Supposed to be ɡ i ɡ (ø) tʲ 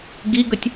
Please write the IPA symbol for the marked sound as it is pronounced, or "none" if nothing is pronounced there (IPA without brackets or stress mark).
ə